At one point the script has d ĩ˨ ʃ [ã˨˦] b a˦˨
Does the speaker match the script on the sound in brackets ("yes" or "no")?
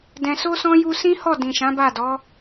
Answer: yes